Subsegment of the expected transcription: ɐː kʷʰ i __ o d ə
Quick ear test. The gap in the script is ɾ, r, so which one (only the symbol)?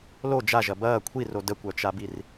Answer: r